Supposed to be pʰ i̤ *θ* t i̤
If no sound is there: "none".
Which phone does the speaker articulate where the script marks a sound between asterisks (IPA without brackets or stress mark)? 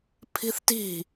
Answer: θ